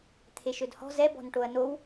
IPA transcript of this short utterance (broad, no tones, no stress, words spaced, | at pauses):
t̪ʰeʃɵdhɔ̤ zɛ bɔ̤nʈoɐ̯now